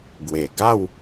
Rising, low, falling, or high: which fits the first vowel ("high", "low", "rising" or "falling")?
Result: low